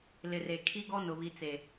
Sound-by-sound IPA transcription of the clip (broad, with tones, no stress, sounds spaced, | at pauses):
l ɪ˨ r e˨ kʰ i˦ ɡ ɔ˦ n ʊ˨ β i˨ t͡s e˨